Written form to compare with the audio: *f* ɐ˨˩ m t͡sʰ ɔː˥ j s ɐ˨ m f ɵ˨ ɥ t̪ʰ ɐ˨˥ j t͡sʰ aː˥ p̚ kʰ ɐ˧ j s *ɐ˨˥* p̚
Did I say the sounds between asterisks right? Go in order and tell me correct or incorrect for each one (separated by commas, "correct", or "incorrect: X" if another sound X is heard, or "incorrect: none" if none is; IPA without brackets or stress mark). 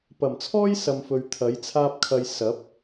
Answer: incorrect: p, correct